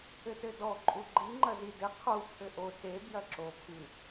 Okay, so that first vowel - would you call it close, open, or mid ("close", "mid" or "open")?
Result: mid